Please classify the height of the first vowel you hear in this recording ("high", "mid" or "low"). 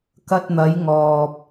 low